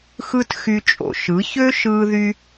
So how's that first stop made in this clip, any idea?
plain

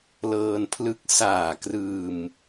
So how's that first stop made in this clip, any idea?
aspirated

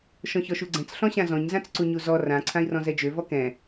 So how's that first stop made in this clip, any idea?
click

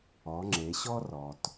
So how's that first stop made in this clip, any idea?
click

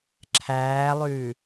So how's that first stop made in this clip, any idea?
click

